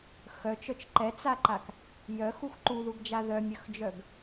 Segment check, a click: present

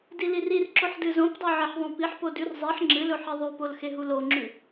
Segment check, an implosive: absent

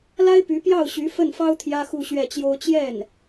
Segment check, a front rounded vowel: present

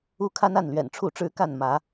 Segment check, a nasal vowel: absent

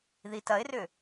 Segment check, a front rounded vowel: present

